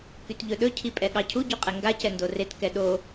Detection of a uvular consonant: present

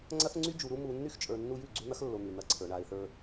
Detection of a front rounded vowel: present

